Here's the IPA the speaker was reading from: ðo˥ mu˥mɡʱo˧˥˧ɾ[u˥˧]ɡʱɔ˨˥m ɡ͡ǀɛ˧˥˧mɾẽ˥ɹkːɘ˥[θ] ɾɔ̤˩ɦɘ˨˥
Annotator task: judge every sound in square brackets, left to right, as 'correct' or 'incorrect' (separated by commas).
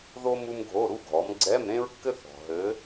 incorrect, correct